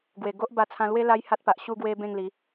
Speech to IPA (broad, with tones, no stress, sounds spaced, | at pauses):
ɡ w e˨˩ ɡ o˦ ʔ b a˧ t͡sʰ ã˧ l w e˦ l a˦ j h a˦ t̚ p a˨ ʔ ɕ u˧ ɡ w e˧ b ẽ˥˧ ŋ l i˨˦